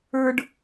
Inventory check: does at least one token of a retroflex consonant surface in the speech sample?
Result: yes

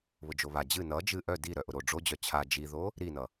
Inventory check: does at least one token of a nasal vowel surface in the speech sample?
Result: no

